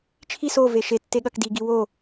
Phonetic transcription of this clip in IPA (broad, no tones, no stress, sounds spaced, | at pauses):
t͡ʃʰ i s o v e ʃ e tː e ɠ ɐ k d i ɡ i w o